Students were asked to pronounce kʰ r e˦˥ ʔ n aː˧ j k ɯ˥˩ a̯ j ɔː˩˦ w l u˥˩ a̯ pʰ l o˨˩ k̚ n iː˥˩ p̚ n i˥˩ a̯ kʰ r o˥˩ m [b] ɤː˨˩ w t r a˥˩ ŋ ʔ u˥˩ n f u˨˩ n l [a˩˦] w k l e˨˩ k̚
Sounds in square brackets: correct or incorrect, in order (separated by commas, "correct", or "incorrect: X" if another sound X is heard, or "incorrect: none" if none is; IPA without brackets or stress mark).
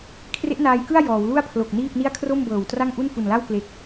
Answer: correct, incorrect: a˥˩